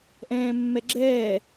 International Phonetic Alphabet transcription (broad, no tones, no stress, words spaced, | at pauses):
ʔɛ̃ːmːɛɡ͡ǁɛː